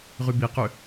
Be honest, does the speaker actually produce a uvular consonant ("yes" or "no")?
yes